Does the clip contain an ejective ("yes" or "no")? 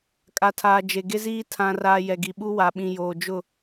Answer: yes